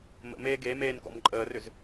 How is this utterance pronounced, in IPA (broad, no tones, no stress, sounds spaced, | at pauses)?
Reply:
m ə̰ m eː ɡ e m eː n k ɔ̰ m ǃʼ əː r ʏ z